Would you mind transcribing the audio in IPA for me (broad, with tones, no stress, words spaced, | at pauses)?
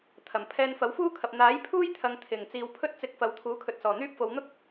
t̪ʰɐ˨˩m pʰɛː˧nfɐ˨˥wfuː˥kʰɐ˨p̚ n̪aː˨˥jpʰuː˥j t̪ʰɐ˧ŋ t̪ʰɪ˨˩ŋ t͡siː˨wpʰɵ˥t̚t͡sɪ˧k̚ fɐ˨˧wt̪ʰuː˨˥kʰɵ˨t̚ sɔː˨˩n̪yː˥p̚fo˨˧w n̪ʊ˥k̚